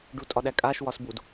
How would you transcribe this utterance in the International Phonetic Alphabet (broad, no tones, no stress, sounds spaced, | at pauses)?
ɖ u tʼ ɒ ɗ æ kʼ a ʃ w ɒ s b u d